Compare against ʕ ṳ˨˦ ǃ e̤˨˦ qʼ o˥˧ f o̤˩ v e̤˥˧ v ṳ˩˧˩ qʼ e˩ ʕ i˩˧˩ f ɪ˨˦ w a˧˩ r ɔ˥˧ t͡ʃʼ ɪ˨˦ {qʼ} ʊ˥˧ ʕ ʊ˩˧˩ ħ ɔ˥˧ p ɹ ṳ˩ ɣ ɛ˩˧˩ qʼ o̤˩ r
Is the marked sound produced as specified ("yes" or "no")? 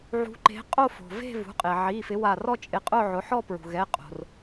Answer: yes